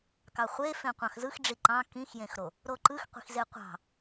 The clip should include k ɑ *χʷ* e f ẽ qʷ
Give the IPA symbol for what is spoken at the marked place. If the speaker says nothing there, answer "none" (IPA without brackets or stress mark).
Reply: χʷ